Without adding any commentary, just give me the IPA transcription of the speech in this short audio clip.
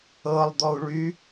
ɤ lˠ d̪ ɔ u̯ ɭ y

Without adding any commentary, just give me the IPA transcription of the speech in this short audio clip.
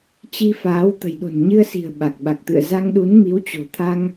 t͡ɕ i˧ f aː˨˦ w t̪ ə̤˨˩ j ɗ o̤˨˩ n ɲ ɨ˧ ə̯ s i̤˨˩ ə̯ ɓ a˨˩ k̚ ɓ a˨˩ k̚ t̪ ɨ̰˧˨ ə̯ z a˧ ŋ ɗ u˨˦ n m i˨˦ w t͡ɕ o̤˨˩ t̪ʰ a˧ ŋ

